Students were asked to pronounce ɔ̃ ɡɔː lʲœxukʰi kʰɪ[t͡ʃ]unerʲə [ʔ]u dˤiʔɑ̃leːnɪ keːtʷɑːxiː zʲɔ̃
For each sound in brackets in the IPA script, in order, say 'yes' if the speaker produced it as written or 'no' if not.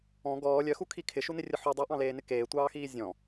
no, no

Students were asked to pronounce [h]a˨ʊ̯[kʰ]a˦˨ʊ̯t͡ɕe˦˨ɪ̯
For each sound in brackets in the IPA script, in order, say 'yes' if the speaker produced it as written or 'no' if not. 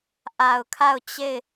no, yes

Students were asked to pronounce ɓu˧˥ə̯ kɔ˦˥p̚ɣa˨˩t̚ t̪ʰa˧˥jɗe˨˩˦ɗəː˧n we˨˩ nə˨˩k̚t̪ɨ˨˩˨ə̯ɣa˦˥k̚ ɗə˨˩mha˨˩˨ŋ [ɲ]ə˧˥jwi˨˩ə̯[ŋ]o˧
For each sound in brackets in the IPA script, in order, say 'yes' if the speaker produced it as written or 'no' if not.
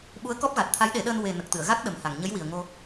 yes, yes

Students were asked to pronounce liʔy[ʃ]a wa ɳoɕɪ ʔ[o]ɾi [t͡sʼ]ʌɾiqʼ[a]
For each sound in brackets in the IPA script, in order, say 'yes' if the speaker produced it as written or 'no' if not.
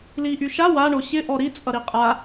yes, no, yes, yes

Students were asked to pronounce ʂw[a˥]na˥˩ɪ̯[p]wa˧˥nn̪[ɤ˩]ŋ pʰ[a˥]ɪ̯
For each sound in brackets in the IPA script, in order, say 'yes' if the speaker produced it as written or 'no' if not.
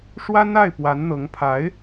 yes, yes, no, no

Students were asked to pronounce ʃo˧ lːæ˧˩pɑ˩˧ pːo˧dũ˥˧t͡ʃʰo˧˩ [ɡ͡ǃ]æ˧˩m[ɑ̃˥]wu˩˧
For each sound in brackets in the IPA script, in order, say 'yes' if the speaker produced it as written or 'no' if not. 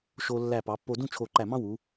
no, yes

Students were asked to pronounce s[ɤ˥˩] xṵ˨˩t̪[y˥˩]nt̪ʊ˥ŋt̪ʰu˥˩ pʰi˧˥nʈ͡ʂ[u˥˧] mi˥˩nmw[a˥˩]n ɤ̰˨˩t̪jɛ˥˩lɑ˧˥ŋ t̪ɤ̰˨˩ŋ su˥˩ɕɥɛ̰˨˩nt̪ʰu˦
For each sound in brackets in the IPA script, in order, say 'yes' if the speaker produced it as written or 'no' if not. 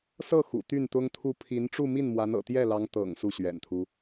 yes, yes, yes, no

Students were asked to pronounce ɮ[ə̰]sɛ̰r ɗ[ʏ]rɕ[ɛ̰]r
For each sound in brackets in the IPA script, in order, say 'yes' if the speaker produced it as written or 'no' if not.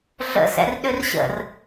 yes, yes, no

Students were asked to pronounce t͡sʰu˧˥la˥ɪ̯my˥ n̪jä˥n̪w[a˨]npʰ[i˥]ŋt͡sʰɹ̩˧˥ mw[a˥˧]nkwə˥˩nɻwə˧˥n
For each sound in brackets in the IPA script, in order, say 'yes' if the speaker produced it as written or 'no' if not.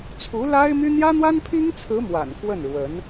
no, yes, no

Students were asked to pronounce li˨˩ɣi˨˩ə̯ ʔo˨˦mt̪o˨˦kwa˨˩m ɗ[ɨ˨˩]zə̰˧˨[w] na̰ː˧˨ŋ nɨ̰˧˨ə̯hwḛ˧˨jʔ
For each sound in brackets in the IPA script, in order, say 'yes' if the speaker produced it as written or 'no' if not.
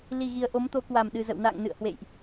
yes, yes

